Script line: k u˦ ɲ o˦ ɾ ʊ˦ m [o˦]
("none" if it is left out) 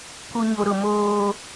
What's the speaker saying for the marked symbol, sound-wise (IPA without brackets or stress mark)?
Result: oː˦